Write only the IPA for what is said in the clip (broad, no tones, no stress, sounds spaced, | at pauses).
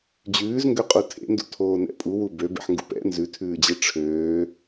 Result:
d͡ʑ ʉː z ŋ ɡ ø qʼ u tʰ ḛ n d ṵ tʰ oː n ɛ̰ pʼ u w u b ø b ḛ ħ ŋ ɡ ṵ p ɛ̰ n z ʉ tʰ ʉː d͡ʑ e ʈ͡ʂʰ øː